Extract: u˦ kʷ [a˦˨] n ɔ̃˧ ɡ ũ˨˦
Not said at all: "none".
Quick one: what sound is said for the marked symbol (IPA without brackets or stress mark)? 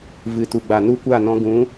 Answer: a˦˨